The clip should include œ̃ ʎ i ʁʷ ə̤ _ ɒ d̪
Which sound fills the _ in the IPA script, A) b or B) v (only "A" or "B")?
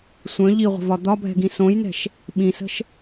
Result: B